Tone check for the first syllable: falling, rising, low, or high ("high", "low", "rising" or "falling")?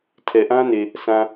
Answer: low